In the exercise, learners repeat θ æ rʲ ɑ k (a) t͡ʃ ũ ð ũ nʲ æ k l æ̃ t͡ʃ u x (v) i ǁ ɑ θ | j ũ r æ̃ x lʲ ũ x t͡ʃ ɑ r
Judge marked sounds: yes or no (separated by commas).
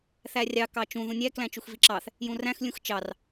no, yes